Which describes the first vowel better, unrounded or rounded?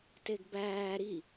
unrounded